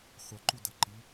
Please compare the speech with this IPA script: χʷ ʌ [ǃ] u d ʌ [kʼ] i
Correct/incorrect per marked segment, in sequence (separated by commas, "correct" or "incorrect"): correct, incorrect